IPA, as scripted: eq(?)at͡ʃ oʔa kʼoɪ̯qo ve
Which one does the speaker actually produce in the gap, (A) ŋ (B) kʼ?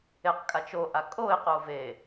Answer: B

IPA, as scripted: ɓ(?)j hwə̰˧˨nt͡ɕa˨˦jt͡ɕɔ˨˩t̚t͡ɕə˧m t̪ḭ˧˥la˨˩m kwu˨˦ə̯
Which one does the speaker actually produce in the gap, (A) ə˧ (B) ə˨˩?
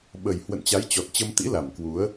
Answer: B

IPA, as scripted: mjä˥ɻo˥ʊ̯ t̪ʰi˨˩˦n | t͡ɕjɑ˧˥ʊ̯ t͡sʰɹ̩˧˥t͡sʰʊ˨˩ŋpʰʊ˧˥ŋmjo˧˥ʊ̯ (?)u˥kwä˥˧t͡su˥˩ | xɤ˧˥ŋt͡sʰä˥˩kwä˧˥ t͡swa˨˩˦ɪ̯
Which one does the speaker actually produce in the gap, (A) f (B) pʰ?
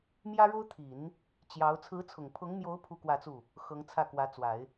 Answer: B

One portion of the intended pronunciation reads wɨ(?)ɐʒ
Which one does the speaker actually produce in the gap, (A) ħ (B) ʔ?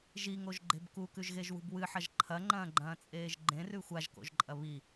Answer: A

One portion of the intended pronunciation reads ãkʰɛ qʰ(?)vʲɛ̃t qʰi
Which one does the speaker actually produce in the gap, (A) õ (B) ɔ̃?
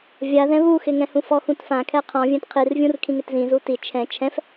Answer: B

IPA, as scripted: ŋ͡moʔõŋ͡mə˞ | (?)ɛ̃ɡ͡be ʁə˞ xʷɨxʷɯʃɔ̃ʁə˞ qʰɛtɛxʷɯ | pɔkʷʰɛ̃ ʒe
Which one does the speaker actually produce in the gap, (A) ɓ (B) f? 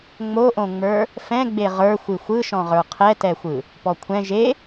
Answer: B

